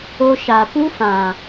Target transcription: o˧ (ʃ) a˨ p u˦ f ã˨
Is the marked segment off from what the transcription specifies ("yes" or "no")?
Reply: no